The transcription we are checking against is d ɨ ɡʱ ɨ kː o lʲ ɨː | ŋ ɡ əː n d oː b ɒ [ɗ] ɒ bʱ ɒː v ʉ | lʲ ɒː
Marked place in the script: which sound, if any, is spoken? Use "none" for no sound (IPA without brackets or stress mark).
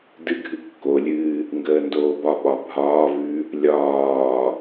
ɓ